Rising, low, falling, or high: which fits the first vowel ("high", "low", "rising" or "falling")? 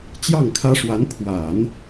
falling